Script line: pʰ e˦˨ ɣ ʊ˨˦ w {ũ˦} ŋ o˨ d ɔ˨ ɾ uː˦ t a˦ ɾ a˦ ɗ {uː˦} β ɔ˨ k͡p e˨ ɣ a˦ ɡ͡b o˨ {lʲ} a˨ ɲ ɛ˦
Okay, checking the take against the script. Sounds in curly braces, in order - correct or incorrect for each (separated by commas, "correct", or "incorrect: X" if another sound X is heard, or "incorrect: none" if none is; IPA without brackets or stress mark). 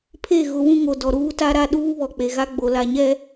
correct, correct, incorrect: l